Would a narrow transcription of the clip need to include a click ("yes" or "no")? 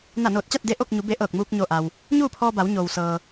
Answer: no